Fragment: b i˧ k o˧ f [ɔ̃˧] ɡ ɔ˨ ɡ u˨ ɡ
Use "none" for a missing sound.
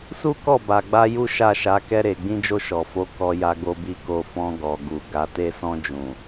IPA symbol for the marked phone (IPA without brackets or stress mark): ɔ̃˧